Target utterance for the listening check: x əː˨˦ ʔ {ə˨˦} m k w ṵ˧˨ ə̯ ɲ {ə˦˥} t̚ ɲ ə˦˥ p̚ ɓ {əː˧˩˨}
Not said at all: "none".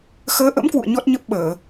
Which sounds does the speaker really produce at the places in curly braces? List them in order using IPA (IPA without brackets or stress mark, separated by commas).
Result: ə̰˧˥, ɔ˦˥, əː˧˩˨